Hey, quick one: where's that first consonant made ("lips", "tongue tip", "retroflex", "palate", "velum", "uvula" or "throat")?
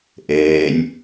throat